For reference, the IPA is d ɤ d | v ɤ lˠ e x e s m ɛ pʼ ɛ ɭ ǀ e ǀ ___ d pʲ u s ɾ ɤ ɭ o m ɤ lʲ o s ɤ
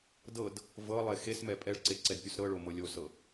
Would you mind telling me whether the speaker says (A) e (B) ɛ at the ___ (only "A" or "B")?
B